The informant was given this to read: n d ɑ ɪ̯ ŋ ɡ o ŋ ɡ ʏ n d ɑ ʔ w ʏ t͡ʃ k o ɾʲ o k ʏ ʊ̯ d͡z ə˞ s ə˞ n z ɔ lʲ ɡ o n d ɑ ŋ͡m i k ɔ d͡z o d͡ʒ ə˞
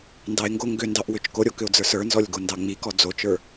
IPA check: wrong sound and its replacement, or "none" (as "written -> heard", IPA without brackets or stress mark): d͡ʒ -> t͡ʃ